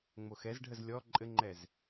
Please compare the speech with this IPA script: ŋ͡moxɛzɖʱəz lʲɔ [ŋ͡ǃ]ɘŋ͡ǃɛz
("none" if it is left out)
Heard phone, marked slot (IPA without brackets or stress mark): ǃʼ